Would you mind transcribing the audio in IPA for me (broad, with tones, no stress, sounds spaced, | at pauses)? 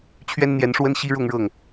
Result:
t͡ɕʰ ɥ ɛ˥ n n̪ j ɛ˧˥ n ʂ w ə˥ n ɕ i˥ ɻ ʊ˥˧ ŋ ɻ ɤ˥˩ ŋ